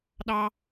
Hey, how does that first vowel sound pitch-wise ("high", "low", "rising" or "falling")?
low